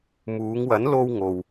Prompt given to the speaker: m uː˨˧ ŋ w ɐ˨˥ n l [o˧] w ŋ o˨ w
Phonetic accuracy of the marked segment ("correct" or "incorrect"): correct